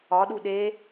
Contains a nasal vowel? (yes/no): no